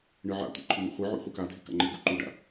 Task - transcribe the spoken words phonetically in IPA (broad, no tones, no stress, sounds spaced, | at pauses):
ɳ ɨ ʕ a̰ tʷ ḭ ǃʰ u n̪ ṵ χʷ ɨ ʕ ṵ χʷ ɨ k a dʱ i k a̰ ŋ͡ǃ i ɡ u ǃ u ɖ a̰